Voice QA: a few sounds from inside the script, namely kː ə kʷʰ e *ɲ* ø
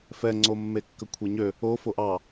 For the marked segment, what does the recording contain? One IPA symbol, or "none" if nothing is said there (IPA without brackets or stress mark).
ɲ